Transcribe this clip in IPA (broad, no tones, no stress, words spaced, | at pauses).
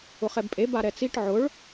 ʊχɛbpʼe baɾɛt͡siʈ ʕʊɭ